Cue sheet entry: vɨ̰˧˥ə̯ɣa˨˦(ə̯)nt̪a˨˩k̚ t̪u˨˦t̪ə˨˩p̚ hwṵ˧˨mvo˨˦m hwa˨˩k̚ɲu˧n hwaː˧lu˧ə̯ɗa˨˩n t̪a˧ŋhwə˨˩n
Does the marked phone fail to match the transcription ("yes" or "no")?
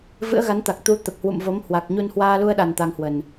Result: yes